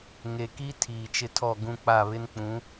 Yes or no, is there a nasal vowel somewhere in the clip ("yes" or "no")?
yes